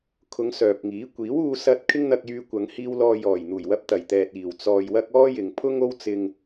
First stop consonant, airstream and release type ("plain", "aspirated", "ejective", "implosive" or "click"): aspirated